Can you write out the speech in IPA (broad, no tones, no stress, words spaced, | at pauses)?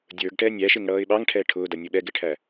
dʲə˞ɡʈɛ nʲæʃɪŋɽʌːɪ̯ ɓɑŋʈʰɛː ʈʰʊːdʌnʲʊ ɓɛɡɪʈʰæ